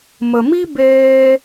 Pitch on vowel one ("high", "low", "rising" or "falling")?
low